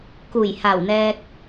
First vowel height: high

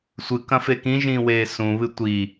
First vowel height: high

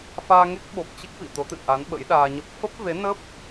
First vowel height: low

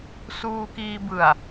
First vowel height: high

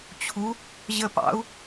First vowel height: high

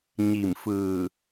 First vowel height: high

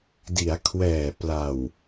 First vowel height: high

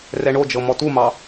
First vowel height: mid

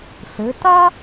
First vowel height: mid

